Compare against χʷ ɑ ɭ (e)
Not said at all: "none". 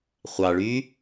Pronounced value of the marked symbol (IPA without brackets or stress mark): y